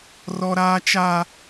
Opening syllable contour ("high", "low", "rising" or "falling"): high